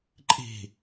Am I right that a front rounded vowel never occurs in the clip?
yes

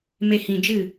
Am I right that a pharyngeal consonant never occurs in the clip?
yes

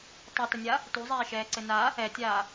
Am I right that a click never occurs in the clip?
no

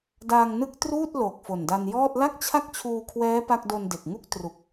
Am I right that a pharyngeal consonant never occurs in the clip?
yes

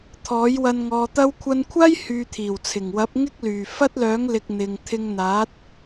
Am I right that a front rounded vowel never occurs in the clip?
no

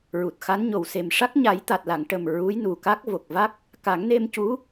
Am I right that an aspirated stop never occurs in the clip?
yes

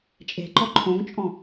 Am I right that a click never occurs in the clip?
no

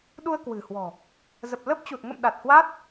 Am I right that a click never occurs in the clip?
yes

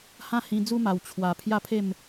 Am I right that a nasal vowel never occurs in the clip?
no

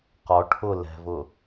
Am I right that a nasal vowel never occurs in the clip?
yes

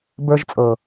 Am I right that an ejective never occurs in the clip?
no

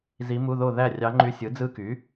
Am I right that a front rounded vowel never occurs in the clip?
no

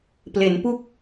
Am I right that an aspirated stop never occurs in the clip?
yes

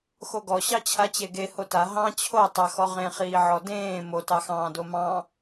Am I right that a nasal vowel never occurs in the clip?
no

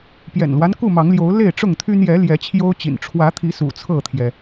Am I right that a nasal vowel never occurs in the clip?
yes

